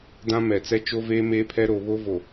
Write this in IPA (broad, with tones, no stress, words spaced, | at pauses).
dã˦mɛ˨ t͡sɛ˦t͡ʃo˦veː˦ meː˦pʰɛ˦ ɾo˨βo˦vo˨